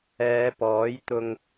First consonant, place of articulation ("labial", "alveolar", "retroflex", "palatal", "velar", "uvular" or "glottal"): labial